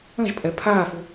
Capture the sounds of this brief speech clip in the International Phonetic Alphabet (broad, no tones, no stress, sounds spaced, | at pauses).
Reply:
ə̃ ʒ pʼ ɛ pʰ aː f u